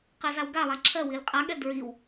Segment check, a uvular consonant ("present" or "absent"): present